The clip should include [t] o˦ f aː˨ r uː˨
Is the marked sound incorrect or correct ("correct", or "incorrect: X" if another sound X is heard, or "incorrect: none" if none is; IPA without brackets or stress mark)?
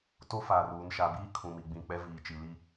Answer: correct